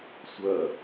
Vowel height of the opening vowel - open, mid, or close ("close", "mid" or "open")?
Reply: open